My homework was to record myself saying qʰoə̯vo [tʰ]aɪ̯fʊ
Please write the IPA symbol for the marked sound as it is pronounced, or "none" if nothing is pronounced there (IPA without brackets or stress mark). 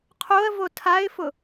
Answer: tʰ